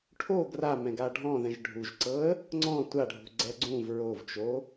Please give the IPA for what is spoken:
ʈʰ o ɡ r a m ɛ̃ ɡ a ɖʱ ɔ̃ ð ɛ̃ ʒ ɖʱ u ʒ ǀ ɤ ə̯ | ŋ͡ǀ ɔ̃ tʷ a ɖʱ ṳ ɡ͡ǀ ɛ ɡ͡ǀ ũ v ɹ o v t͡ʃ o

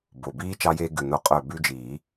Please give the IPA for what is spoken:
b o˨˩ b iː˦˥ t͡ʃ ɑ˧ j eː˧ ɡ ʉ˨˩ n o˨˩ qʼ œː˨˩ b ʉ˧ d͡ʒ iː˨˩˦

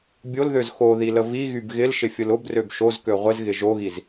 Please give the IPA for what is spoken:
bʲ o l ð ø z x o ð i l ə v i ɣ y b ɣ ɪ l ʃ ɪ fʲ ʊ l ʊ b r ø b ʃ o z k ø ʁʷ ɪ z ɣ ɪ ʒ o ɣ i z

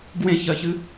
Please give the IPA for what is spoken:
ɡ w ẽ ç ɜ ç ɨ

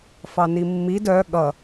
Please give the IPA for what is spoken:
f ɑ n i mː i d œ ɠ ʌ

